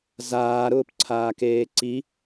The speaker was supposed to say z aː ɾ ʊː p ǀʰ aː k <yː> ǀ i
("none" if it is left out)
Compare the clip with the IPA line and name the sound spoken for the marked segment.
eː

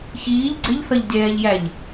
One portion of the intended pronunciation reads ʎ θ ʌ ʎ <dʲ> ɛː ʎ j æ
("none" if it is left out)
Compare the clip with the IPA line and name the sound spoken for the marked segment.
dʲ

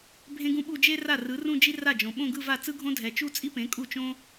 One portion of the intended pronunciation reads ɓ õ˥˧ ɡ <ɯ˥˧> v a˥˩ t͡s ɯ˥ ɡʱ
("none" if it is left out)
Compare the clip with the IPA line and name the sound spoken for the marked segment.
ɯ˥˧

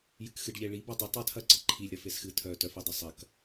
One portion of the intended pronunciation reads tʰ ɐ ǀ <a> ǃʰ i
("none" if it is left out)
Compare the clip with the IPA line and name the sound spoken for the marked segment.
ə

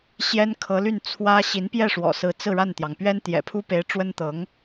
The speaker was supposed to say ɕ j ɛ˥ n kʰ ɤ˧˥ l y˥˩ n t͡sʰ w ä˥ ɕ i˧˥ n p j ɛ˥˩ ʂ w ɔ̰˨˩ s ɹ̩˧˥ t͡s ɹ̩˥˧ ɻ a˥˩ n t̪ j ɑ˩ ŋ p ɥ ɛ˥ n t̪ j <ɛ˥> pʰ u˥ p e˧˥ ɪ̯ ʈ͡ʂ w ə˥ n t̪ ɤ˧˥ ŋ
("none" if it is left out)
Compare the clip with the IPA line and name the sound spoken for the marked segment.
ɛ̰˨˩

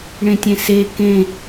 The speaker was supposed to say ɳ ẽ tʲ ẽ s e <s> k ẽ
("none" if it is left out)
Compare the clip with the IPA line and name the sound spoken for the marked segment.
none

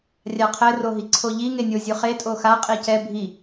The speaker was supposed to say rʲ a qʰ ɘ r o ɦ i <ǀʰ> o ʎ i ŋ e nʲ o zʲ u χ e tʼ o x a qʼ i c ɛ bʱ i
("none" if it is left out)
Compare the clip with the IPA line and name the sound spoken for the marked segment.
ǀʰ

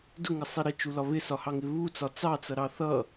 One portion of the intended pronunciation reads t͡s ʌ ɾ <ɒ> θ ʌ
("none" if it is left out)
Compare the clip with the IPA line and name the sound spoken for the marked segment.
ɑ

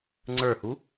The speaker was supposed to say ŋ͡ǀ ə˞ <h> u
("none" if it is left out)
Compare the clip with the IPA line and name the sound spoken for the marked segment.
h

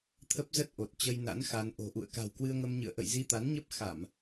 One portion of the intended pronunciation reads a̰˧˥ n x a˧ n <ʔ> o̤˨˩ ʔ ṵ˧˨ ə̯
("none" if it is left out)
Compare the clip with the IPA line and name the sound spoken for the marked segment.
ʔ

